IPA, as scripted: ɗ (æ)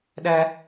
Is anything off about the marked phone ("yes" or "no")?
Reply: no